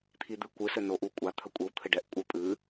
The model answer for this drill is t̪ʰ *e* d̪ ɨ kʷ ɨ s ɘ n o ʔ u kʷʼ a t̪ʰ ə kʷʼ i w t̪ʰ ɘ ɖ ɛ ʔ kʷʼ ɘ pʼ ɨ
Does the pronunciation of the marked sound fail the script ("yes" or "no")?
yes